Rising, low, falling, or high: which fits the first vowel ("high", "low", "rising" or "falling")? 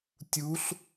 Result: rising